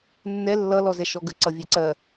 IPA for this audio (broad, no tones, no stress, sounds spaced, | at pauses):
nː ɛ lː ʌ l ɔ z ɛ ʃ ɔ ɡ ə ǀ ʌ vʲ e ǀ ɜ